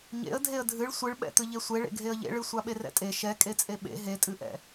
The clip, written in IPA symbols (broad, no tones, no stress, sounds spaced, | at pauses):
ɲ ḛ ə̯ dʱ e ə̯ dʱ ɨ ɭ sʷ ɨ ɭ ɓ ɛ̰ t̪ ɨ ʎ e sʷ e ɭ ḛ ɡʱ e ə̯ ʎ ḛ ɭ ɨ sʷ a ɓ e r ɛ̰ tʼ e ʃ ɛ kʼ e t͡sʼ e ɓ ḛ ɦ e tʼ ɨ ʔ ɛ̰